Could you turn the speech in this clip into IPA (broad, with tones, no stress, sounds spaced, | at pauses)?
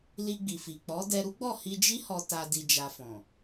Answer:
l i˧ ɡ͡b i˨ f i˨ k͡p ɔ˨˦ d ɛ˧ ɾ u˦ ɡ͡b ɔ˦˨ h i˧ d͡ʒ i˦ h ɔ˧ t a˧ d i˨ d͡ʒ a˨ f ɔ̃˨